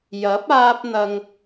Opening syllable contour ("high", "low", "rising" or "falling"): rising